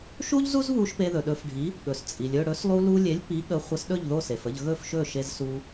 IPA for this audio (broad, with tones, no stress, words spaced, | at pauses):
ʃu˥ʎzu˥zβu˧ʃ pe˧ðɵ˩ɗɵ˩˥fɖʱi˩˥ | ɠɵ˩st͡sʼi˩lʲɵ˥˩ ɽɵ˩˥slˠu˧lu˧lʲe˩˥lʲ pi˩˥ ɠə˩˥χʷə˩˥s ɗɵ˥˩ʎðo˥˩se˩fə˥˩ʎ ɣɵ˥˩fʃɵ˥˩ʃe˧zsu˧